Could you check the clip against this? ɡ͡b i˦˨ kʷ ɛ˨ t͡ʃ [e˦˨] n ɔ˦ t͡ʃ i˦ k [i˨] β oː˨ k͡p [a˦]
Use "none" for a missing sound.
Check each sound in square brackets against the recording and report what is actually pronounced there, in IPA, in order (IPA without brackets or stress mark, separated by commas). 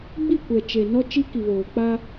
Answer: e˨, i˨, a˦